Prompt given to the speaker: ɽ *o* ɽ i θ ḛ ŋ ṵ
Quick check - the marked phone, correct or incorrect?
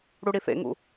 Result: incorrect